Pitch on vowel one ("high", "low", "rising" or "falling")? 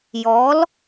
rising